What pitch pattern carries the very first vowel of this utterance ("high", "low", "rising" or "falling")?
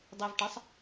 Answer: low